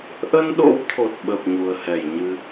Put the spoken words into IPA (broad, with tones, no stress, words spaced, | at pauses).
ʔə˧nɗo̰˧˥wt̪ʰo˨˩t̚ɓə˨˩p̚ ɲu˨˩ə̯hɛ˧˩jɲɨ˧